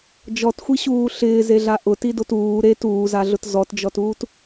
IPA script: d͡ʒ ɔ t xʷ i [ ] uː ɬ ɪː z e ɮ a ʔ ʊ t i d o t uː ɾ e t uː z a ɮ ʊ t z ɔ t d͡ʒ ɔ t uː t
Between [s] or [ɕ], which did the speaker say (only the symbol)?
ɕ